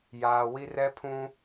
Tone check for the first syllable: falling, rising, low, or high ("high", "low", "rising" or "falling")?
low